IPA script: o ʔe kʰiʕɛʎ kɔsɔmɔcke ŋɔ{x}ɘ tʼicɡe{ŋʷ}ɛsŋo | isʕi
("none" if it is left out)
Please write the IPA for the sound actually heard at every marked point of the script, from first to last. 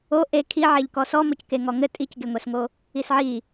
ŋ, ŋʷ

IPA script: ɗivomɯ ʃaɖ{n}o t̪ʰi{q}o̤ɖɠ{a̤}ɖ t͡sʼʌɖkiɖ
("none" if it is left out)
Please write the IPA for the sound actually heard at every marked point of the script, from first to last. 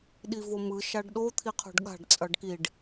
ɗ, qʰ, a̤

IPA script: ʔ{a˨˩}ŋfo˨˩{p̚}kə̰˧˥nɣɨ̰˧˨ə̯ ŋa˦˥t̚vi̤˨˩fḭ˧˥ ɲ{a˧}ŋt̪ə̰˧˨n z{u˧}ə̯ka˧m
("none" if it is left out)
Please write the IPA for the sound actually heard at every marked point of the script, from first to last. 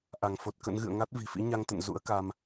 a˧˩, t̚, a˧, ṵ˧˥

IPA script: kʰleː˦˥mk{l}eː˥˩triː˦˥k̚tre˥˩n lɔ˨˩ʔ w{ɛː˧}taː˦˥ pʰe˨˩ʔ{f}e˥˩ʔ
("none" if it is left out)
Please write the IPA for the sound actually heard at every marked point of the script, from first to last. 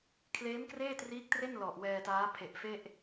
r, ɛː˧, f

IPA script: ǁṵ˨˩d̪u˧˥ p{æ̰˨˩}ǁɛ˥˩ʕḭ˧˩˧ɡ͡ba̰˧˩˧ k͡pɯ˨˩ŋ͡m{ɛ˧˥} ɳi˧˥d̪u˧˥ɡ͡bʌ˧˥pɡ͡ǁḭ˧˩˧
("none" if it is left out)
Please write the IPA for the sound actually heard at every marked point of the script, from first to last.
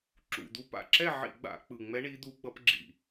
a̰˨˩, ɛ˧˥

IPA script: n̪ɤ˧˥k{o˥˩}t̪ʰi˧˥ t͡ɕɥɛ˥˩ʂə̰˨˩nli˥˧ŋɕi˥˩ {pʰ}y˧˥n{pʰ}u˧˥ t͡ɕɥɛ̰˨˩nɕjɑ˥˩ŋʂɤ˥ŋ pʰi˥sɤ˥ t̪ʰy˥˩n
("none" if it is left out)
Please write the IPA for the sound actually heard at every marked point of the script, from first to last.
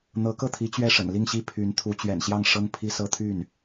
ɤ˥˩, pʰ, t̪ʰ

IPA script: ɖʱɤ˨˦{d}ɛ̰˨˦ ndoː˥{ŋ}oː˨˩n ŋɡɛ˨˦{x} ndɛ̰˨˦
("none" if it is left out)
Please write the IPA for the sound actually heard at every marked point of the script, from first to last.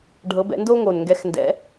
b, ŋ, x

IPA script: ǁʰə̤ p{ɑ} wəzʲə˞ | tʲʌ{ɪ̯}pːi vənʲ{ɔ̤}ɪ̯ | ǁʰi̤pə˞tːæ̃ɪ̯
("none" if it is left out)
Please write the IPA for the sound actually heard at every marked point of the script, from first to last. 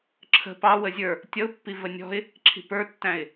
ɑ, ʊ̯, ɔ̤

